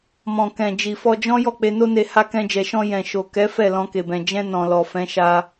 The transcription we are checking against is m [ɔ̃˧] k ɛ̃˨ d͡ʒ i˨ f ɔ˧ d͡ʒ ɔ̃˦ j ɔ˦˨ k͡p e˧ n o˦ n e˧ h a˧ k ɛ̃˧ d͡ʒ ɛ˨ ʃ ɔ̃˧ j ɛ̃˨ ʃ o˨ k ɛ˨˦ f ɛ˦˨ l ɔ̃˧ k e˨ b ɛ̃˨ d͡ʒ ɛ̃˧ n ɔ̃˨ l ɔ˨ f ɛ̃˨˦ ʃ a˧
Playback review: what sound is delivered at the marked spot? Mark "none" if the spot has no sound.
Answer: ɔ̃˨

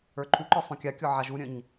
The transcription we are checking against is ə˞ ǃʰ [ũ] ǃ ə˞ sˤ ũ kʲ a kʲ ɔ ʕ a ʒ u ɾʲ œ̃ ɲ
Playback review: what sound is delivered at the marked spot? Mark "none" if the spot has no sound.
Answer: u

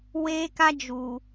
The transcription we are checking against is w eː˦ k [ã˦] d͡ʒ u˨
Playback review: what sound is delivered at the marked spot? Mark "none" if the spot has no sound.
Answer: a˦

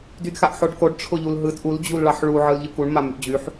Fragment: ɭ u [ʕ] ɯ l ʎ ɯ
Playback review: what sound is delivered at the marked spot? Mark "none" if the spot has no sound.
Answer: ʕ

